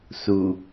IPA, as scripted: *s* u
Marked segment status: correct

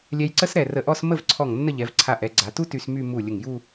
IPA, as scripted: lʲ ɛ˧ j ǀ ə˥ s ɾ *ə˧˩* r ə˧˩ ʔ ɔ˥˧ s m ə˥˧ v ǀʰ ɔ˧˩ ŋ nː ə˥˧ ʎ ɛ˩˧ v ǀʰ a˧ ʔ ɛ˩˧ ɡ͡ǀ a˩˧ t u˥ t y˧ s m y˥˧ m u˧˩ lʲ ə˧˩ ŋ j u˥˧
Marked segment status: incorrect: ɛ˧˩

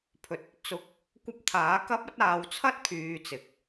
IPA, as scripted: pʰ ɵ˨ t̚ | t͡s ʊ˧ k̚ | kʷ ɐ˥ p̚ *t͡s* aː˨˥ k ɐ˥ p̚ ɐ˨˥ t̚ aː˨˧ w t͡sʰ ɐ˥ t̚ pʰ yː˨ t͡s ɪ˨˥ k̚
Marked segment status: incorrect: t̪ʰ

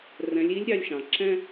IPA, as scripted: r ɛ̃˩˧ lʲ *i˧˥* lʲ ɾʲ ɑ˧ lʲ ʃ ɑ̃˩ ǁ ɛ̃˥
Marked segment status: correct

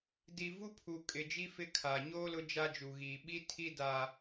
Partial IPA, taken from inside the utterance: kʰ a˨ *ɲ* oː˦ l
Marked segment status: correct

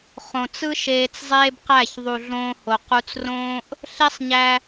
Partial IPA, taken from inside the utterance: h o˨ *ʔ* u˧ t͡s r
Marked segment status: incorrect: q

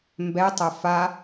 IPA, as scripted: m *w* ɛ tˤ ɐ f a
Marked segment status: incorrect: b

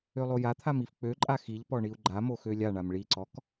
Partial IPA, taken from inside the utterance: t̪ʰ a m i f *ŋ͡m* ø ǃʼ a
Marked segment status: incorrect: k͡p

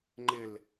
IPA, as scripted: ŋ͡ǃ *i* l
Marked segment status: incorrect: ɪ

